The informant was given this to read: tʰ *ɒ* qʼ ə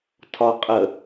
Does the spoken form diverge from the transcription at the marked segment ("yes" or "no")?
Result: no